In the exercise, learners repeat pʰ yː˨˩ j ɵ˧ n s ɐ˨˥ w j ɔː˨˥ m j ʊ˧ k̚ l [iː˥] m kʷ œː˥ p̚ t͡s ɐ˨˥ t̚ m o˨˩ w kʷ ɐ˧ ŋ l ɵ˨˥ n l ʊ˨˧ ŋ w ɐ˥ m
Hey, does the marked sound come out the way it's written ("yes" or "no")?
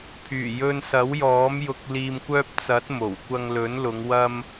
no